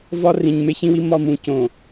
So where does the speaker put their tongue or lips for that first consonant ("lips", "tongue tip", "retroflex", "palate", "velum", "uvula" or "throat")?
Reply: lips